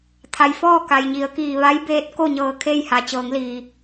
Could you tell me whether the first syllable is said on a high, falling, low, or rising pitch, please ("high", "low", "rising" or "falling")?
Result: low